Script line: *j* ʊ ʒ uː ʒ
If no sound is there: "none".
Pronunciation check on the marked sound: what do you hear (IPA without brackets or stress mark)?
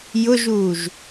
j